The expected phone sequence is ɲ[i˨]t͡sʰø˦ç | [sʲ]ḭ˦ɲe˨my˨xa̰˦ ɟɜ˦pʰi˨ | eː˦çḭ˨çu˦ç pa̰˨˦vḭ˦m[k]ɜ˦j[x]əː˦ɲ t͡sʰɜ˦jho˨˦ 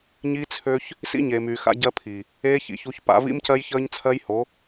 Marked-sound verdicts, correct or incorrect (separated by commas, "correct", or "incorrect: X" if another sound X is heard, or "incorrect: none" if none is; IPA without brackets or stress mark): incorrect: i˦, incorrect: s, incorrect: c, incorrect: ç